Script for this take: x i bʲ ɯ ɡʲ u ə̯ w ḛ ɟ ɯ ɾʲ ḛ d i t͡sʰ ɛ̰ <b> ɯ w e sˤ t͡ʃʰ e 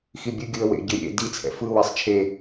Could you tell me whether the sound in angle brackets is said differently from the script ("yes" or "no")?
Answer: yes